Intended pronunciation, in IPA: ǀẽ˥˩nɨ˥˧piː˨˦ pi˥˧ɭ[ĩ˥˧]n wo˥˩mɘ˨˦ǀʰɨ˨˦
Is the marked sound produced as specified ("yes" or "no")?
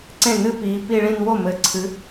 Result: yes